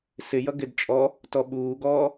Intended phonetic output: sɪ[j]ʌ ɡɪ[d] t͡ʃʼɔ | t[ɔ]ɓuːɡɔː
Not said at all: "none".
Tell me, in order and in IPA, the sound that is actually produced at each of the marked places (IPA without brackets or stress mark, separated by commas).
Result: j, d, ɔ